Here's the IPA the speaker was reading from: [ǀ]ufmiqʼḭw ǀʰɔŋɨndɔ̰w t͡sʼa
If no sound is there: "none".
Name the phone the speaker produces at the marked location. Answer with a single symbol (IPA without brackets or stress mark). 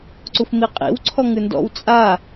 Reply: ǀ